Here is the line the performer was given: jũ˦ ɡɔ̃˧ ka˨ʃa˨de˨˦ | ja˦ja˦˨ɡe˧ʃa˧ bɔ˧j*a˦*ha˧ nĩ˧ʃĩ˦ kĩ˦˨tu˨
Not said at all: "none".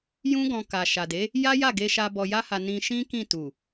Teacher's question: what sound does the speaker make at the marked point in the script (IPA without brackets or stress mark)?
a˦